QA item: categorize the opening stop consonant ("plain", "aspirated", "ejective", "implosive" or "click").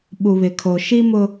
implosive